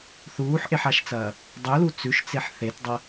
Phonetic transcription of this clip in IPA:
θ uː ħ ʔ e ħ a ʃ t͡s ɐː | dˤ ɵ l u t͡s ʉ ʃ t͡s e ħ θ e t dˤ ɐ

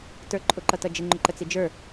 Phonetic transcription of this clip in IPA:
t ə˞ ǃʼ ʊ ǃ ʌ t ʌ d͡ʒ ɪ ŋ͡ǃ ʊ ǃ ə t͡s i d͡ʒ ə˞

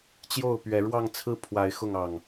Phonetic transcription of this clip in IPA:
t͡ɕ j o˥˨ ʊ̯ p ɥ ɛ˨˦ ɻ w ɑ˥˨ ŋ t͡sʰ ɹ̩˥˨ pʰ w a˨˦ ɪ̯ x ʊ˥˨ ŋ ɑ˨˩ ŋ

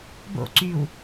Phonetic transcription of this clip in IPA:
b o̰ ǀ yː w

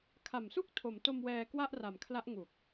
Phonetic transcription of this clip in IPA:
kʰ a˨˩ m s u˥˩ k̚ tʰ o˩˦ m t o˧ m w ɛː˧ k w a˥˩ ʔ r a˨˩ m kʰ l a˦˥ ʔ ŋ u˨˩ k̚

